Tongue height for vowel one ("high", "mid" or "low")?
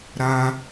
low